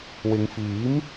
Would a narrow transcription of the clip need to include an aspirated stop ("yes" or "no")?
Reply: no